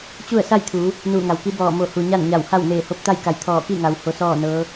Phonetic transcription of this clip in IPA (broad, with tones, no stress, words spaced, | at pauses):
t͡ɕu˥˨ə̯ sa˥˨jt̪ʰuː˩˧ | nuː˧˩ŋa˩wki˧˥ bɔː˧˩mo˧˩hu˩ ɲa˥˨nɲa˧˩wha˥˨w neː˧˩ho˧˥p̚t̪a˥˨jka˧˩j t̪ʰɔː˧˩ki˥˨ŋa˩w ho˧˥sɔː˥˨nɤː˧˥